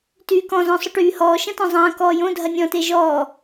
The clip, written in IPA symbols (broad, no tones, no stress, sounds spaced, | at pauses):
t yː k ɔ̃ z ɔ̃ sˤ ʊ ʈ yː h ɔː ʃ ɐ̃ t ɔ̃ zˤ ɐ̃ː k ɔː j õ dʱ ɐ nʲ ɔ̃ t e ʒ ɔː